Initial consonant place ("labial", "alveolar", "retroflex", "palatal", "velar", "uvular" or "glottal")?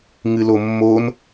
velar